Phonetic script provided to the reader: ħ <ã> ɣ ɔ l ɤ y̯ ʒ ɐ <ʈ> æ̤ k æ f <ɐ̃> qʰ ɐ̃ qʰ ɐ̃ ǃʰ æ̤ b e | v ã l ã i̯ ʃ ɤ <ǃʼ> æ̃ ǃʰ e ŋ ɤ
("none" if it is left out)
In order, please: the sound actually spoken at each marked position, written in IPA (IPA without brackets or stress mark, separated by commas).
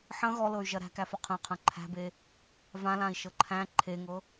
ɐ̃, ɾ, ɐ, ǃʰ